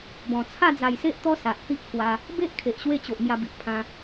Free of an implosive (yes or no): yes